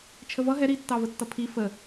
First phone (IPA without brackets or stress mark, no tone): t͡ʃʰ